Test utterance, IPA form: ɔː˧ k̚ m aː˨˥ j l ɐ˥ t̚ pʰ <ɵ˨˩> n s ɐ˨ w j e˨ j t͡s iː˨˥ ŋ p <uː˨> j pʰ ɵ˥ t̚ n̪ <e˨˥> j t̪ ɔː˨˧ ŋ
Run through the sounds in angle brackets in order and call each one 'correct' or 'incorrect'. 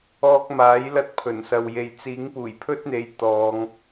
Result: correct, incorrect: uː˨˩, incorrect: e˨˧

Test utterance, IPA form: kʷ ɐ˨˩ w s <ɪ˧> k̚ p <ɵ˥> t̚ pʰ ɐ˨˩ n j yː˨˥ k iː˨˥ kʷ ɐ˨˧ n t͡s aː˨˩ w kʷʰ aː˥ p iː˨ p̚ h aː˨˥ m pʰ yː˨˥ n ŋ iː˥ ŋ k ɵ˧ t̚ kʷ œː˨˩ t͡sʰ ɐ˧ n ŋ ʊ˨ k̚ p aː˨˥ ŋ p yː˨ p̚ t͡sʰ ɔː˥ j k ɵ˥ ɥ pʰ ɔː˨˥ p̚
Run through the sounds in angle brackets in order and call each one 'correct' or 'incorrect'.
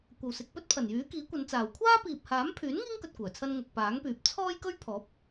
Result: incorrect: ɪ˨, correct

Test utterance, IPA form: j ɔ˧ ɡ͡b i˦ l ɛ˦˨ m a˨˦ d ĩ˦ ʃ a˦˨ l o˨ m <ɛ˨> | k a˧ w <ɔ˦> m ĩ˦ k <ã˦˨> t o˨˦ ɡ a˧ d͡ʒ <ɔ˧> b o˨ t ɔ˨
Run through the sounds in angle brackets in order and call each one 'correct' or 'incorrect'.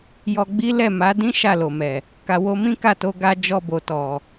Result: correct, incorrect: o˦, incorrect: a˦˨, correct

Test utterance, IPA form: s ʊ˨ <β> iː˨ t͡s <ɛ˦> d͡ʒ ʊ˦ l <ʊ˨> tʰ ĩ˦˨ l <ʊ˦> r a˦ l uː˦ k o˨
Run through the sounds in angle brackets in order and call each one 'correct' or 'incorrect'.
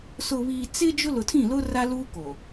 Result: correct, incorrect: ɪ˦, correct, correct

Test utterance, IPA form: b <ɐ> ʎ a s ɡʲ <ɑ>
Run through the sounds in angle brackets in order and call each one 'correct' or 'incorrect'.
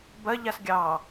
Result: correct, correct

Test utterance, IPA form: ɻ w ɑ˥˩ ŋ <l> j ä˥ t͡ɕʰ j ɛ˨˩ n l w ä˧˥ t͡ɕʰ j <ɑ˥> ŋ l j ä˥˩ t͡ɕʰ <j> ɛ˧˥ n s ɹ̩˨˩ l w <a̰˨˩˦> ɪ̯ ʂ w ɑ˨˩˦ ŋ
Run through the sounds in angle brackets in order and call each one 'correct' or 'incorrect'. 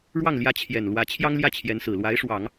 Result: correct, correct, correct, incorrect: a˧˥

